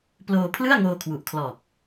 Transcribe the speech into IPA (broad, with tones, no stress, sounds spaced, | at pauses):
p l oː˧ pʰ l ɯ˥˩ a̯ ŋ oː˧ kʰ w u˨˩ ʔ kʰ l ɔː˨˩ k̚